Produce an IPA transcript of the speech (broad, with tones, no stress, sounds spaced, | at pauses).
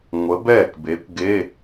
ŋʷ ə˨˥ b ɛː˥˩ k b e˨˥ kʷ ɡ e˧˥˧